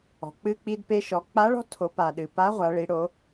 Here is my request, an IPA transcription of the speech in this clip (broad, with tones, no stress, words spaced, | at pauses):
ɔ̤˩k͡pɨ˧ k͡pi˧dpe˧ʃɔ˩˧ k͡pa˧˥ɭɔ̤˧˥ tʰo˩˧pa˩ɗɨ˩ pa˧˥ʁʷa˩˧ ɭi˩˧ɽo˩˧